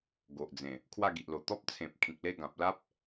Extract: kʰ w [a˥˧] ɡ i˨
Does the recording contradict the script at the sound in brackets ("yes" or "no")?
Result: no